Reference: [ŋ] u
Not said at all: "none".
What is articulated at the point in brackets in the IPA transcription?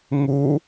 ŋ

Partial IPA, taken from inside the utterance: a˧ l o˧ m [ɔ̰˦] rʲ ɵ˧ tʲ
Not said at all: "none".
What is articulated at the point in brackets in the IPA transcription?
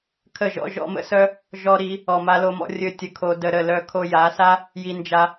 ɔ̰˧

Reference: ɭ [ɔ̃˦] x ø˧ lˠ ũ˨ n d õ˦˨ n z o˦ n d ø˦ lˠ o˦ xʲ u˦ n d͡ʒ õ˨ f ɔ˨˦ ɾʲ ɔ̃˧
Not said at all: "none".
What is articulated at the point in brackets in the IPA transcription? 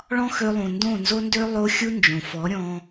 ɔ̃˦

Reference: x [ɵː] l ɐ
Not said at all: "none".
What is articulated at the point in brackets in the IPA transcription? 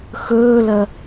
ɵː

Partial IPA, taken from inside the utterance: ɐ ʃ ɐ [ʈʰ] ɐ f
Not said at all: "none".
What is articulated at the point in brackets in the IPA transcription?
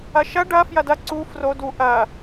ɖ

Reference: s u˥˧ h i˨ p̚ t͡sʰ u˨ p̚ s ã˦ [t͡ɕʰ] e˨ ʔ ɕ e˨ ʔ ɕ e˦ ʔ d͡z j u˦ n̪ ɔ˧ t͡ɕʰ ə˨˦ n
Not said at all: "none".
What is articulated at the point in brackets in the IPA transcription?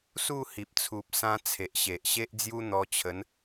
t͡sʰ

